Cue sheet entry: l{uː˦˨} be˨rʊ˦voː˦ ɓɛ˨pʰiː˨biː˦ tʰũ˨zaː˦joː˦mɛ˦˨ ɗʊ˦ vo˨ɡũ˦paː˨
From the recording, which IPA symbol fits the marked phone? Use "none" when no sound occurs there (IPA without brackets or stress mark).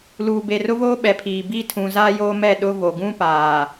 uː˨